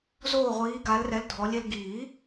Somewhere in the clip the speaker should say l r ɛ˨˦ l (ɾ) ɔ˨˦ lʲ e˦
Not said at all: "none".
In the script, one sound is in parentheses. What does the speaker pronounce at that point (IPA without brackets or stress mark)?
dʱ